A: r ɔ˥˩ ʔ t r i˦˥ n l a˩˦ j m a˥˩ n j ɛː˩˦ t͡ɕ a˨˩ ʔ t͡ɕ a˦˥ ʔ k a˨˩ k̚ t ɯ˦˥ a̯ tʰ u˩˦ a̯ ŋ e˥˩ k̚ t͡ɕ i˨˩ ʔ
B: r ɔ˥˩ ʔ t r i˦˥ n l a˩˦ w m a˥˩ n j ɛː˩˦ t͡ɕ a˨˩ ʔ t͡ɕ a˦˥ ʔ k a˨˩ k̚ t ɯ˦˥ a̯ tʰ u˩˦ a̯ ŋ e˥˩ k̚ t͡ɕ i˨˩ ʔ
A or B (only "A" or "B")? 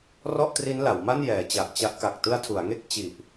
B